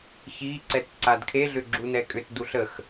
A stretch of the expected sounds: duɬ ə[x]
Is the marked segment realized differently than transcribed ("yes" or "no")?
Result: no